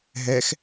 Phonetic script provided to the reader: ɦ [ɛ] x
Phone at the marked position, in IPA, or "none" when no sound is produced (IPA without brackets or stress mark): ɛ